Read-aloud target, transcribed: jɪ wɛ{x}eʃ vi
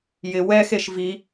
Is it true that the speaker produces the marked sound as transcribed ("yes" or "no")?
yes